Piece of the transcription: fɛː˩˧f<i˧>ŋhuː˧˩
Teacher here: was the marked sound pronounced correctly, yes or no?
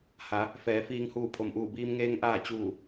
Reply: no